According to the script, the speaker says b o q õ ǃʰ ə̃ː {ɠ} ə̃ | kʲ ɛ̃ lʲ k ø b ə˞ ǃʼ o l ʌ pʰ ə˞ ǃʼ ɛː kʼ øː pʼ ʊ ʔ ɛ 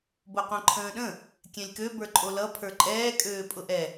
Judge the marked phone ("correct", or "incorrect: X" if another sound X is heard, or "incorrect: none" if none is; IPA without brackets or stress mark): incorrect: ɗ